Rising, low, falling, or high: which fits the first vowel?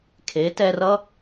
rising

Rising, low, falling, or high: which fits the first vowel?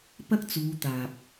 high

